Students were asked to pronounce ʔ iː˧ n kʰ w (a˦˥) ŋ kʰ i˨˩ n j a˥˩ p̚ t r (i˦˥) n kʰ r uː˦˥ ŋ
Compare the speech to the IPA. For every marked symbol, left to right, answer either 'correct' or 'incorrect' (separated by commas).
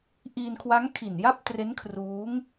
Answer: correct, incorrect